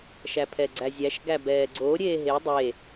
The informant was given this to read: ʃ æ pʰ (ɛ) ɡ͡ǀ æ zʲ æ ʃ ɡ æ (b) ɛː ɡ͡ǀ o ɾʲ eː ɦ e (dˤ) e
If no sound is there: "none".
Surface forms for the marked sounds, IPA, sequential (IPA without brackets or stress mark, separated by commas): ɛ, b, dˤ